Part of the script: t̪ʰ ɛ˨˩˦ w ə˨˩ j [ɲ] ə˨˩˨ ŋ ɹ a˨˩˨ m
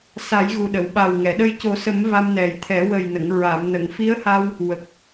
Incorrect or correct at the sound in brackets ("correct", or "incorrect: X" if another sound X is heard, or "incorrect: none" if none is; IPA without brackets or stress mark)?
incorrect: n